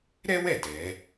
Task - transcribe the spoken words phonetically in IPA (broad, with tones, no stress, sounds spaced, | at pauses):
ɾ ɛ˥ w ɛ˥˩ d ɛ˩˧